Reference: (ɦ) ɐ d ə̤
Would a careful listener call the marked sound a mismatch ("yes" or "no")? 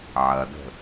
yes